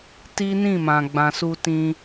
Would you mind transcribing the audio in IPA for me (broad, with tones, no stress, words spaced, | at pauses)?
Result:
ti˦nĩ˦˨ mã˨ɡ͡bã˨su˧tĩ˧